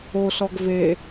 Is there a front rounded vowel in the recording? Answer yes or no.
no